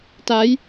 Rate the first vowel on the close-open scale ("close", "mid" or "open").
open